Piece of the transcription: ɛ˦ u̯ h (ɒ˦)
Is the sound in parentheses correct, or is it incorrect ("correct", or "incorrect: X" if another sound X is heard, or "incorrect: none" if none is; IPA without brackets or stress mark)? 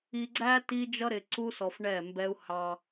incorrect: ɑ˦